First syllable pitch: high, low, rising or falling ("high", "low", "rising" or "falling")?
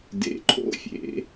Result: low